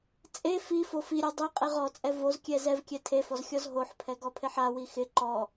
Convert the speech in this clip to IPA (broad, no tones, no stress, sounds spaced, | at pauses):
t͡sʼ e f i f o f i ɾʲ ɔ dˤ i qʼ e ʁ ɔ t͡sʼ ɛ v o z kʲ ɛ z ɛ v kʲ ɛ tʰ e f ɔ z xʲ ɔ z ɦ o ħ pʰ ɛ ɡ ɔ pʰ e ħ a w i x ɪ ǃ ɔ